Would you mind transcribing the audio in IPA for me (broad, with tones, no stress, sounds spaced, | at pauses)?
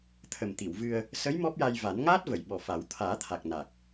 t̪ʰ ə˨˩ m t̪ i˨˩˨ w v ɨ˧ ə̯ | s ə˧˥ j m ɔ˦˥ p̚ j a˧ j v a˨˩˦ n ŋ aː˦˥ t̚ v ə˨˩˨ j ɓ ɔ˨˩ f a˨˩˦ w t̪ʰ aː˨˩˦ t̪ʰ a˨˩ k̚ n a˨˩ k̚